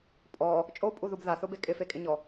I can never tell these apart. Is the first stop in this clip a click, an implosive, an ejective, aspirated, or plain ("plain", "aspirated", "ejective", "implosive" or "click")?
ejective